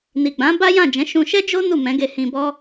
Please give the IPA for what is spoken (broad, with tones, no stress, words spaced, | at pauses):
ni˨ɡ͡bã˨˦ ba˦jã˦˨d͡ʒɛ̃˨˦ ʃũ˧ʃɛ˦d͡ʒo˦ nu˦˨mɛ̃˨˦ɡe˧hĩ˧ bɔ˦